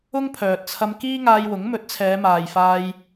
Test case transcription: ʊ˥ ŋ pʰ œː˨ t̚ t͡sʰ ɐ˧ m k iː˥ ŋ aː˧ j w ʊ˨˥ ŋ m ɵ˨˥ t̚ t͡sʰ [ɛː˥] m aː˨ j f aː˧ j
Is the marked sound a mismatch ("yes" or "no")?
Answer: yes